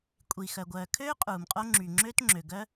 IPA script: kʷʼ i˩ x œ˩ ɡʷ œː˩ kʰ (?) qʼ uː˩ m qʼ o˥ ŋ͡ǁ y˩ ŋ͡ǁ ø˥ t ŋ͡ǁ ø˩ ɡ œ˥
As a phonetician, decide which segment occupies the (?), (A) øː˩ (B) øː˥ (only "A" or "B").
B